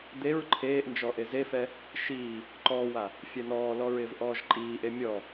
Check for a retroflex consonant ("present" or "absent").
absent